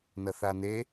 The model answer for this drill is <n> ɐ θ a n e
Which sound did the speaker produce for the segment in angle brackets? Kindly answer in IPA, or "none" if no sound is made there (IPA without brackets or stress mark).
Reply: n